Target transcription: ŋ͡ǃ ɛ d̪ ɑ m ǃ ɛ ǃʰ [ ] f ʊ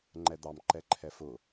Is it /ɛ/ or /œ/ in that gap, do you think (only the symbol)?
ɛ